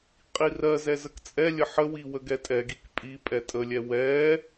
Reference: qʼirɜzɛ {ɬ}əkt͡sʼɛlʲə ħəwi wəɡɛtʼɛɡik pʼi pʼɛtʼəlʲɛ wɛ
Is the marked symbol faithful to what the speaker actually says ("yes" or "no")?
no